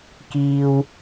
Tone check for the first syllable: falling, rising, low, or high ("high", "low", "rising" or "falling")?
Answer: high